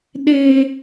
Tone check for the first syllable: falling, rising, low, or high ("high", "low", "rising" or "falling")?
high